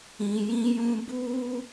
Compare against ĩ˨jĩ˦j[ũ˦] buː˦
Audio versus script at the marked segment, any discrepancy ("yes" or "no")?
no